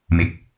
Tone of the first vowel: low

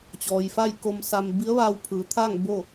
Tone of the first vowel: low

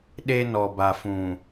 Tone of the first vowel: high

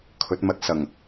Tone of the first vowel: rising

